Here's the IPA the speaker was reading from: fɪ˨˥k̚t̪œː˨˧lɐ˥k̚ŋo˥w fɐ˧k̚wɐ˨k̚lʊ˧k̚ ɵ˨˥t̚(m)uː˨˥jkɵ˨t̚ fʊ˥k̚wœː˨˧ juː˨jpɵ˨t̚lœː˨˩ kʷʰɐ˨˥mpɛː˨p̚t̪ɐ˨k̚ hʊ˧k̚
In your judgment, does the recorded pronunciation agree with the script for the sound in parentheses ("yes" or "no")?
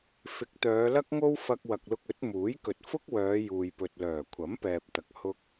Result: yes